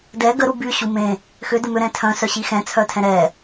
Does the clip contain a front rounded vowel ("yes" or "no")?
yes